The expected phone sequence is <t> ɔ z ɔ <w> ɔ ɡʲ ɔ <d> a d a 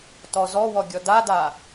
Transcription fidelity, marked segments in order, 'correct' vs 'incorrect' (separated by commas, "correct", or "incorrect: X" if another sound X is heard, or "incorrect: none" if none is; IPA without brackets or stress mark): correct, correct, correct